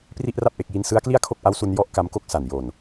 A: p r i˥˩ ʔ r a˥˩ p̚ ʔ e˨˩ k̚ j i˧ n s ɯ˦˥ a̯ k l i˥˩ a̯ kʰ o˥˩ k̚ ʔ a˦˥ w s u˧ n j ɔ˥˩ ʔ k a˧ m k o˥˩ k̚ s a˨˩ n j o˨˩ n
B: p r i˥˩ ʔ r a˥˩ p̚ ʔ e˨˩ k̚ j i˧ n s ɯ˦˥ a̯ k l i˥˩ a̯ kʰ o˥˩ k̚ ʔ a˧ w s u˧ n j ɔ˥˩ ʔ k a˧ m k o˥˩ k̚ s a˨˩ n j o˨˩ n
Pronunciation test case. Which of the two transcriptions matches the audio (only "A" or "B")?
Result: A